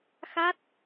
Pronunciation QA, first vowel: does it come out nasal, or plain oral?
oral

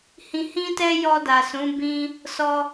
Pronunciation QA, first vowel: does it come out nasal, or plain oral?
nasal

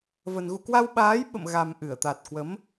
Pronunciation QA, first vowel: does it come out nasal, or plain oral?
oral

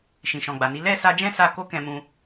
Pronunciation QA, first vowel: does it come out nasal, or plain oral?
nasal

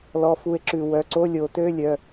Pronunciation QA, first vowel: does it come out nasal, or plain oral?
oral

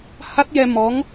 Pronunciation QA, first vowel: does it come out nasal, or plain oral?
oral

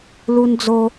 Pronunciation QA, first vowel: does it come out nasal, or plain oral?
oral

